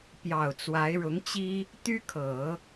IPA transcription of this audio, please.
p j ɑ˨˩ ʊ̯ t͡s w a˧˥ ɪ̯ ɻ ʊ˧˥ ŋ t͡ɕ i˥ | t̪ y˥ kʰ ɤ˨˩˦

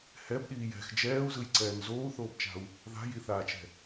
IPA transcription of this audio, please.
h ɛ b ɗ iː j ɛ̤ x d͡ʒ ɛː u̯ z ɯ j ǀ ɛː n z oː u̯ θ oː b t͡ʃ a̤ u̯ | ð a̤ j i θ aː t͡ʃ ɛ̤

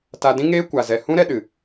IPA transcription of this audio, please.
t a˧ d ĩ˦ ŋ eː˦ kʷ a˨ z ɛ˨ h ũ˦ ɾ ɛ˧ ɗ ɨ˨

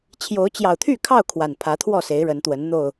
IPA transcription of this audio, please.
t͡ɕʰ j o˨˦ ʊ̯ t͡ɕ j ɑ˨˩ ʊ̯ t̪ʰ y˥˨ kʰ ɑ˥˨ ʊ̯ kʰ w a˨˩ n pʰ ä˨˦ t̪ʰ w ɔ˥˨ s e˨˦ ɪ̯ ɻ ə˨˦ n t̪ w ə˨˦ n n̪ o˨˩ ʊ̯

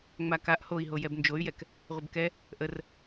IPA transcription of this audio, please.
ŋ͡m a k a ʔ h o i̯ ɦ o j ɛ b n d͡ʒ o y̯ j ɛ k | ʁʷ ə b k ɛ | ʔ ə r

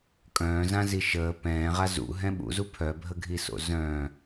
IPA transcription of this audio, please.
kʼ œ̃ː z ã z i ʃ əː p ɛ̃ː ʁ a z ṵ ɦ ɛ̃ ɓ ṵ z u pʰ œ bʱ ə ɡʱ i s o̰ z œ̃

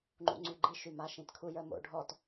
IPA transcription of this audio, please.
ŋ͡ǃ ṵ ŋ͡ǀ y ɡ͡ǃ i ʃ y m a ʃ ĩ t kʰ u j ə m o̰ ɖʱ ɔ t

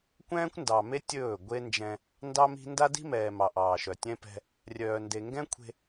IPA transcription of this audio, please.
kʷ ɛ̃ː˦ kʷ n d ɑ˨ m e˦ tʲ ɵː˦˨ ɡʷ e˦ n d͡ʒ ɛ̃˦ | n d ɑ˦ m i̤˦ n d a˦ d i̤˦ m ɛː˨ m ɑ˨ ʔ ɑː˨ ʃ œ˨ tʲ ɛ̃˦ p ɛ̤˦ | rʲ œː˨ n d e˨ ŋ ɡ ɛ̃˦ kʷʰ e̤˦

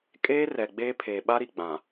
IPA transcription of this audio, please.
kʼ eː˦ r ɛ˨ ɡ͡b eː˦ pʰ eː˨ ɓ a˦ ɾ i˨ ɡ͡b ã˨

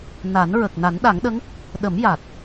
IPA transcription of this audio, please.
n a˨˩˦ n ɹ ə˨˩ k̚ n a˨˩˦ n ɗ a˨˩˦ ŋ ɗ ə˧˥ ŋ | ɗ ə˨˩˦ m j a˨˩ t̚

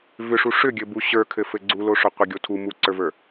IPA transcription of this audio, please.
v ʏ ʂ u ʂ ʏ ɡʲ ɘ b u ɕ ə˞ kʰ ɘ f ɘ ɡ͡ǀ u l o ʂ o qʷ ɘ ɡʲ o tʰ u m u ǀ ə˞ v ə˞

